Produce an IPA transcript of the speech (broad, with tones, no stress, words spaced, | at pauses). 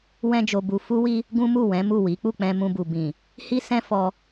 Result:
wɛ̃˦d͡ʒo˧bu˧ fu˦wi˦ | ɡũ˦mu˦˨ wɛ̃˨˦mu˦˨ wi˨˦ k͡pu˦˨k͡pɛ̃˧ mũ˧bu˨ bĩ˨ | hi˦sɛ̃˦ fɔ˧